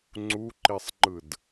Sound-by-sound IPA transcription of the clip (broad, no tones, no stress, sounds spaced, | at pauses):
ŋ͡ǀ u ǃ i sˤ ŋ͡ǃ ɯ d